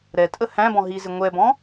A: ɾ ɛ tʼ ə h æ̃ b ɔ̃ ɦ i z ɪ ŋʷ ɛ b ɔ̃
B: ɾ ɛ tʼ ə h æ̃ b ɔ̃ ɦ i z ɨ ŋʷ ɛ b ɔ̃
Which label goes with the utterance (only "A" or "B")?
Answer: A